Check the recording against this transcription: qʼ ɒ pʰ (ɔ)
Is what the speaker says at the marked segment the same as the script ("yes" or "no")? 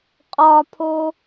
no